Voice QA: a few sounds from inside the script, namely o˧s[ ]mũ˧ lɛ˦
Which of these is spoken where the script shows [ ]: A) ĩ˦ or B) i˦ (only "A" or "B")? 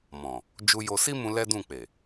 B